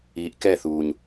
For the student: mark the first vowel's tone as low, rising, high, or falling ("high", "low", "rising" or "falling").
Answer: low